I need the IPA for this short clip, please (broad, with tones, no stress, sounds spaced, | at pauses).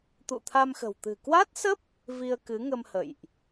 t̪ ṵ˧˨ t̪ʰ a˧ m x ə̤˨˩ w t̪ ɨ̤˨˩ k w a˦˥ t̚ s ə˦˥ p̚ | v i˧ ə̯ k ɨ˨˦ ŋ ə˧ m h ə̰˧˨ j ʔ